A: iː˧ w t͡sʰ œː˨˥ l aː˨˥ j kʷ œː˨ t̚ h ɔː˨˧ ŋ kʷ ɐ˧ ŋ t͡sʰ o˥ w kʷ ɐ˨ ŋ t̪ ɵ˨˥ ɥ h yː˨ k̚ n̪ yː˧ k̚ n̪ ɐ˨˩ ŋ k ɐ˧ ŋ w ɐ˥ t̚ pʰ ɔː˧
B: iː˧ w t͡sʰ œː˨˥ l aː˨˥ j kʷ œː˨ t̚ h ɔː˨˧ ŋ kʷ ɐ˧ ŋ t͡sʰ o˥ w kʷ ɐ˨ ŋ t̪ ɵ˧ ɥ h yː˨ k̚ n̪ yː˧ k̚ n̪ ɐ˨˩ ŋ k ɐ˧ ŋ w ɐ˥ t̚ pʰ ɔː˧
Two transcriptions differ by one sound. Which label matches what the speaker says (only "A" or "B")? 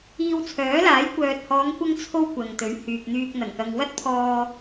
A